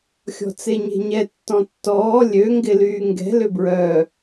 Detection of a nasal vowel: present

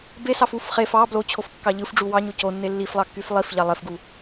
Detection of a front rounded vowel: present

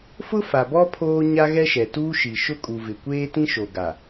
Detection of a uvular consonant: absent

